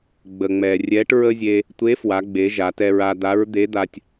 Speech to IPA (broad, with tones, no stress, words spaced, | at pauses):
ɡ͡bə˩ŋ͡mɛ˩ rʲɛ˧˥ʈɹə˥zʲe˧ | tʷe˧˥fwa˩˧ɡ͡be˩˧ ʒa˩˧tɛ˧ɹa˧ d̪a˧˥ɹd̪e˧˥d̪a˧tʲ